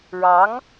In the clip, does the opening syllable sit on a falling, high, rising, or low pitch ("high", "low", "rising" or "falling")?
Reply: rising